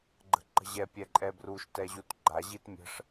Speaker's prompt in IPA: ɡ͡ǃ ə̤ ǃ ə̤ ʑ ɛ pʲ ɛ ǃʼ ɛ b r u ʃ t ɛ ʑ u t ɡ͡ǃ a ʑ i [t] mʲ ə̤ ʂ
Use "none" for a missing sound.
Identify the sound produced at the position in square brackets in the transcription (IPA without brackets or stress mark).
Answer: t